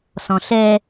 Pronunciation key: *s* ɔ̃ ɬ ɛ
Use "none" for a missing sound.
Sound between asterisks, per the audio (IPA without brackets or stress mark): s